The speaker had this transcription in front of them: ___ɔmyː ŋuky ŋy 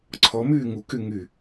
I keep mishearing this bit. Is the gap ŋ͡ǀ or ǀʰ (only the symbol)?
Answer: ǀʰ